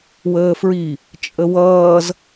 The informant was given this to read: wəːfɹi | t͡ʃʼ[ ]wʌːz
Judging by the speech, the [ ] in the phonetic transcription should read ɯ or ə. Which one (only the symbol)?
ə